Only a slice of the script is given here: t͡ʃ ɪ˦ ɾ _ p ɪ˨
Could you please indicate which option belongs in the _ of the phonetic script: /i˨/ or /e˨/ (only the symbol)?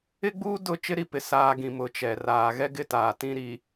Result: i˨